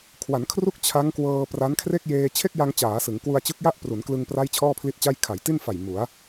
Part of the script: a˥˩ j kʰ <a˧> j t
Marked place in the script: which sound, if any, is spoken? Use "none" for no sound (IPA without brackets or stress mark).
a˩˦